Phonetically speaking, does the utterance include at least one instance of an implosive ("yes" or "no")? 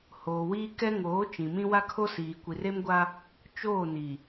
no